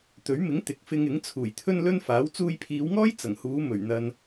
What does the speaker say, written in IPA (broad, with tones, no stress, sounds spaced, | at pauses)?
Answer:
t̪ ɵ˨˥ ɥ m ɪ˨˥ ŋ t̪ ɪ˨ k̚ f ɪ˧ ŋ ɪ˨˥ ŋ t͡sʰ uː˨˩ j t̪ʰ ɵ˥ n l ɵ˥ n f aː˨˥ w t͡s uː˧ j pʰ iː˨˧ w ŋ ɔː˥ j t͡s ɐ˨˩ ŋ h uː˨˧ m ɵ˨˩ ɥ n̪ ɐ˨ n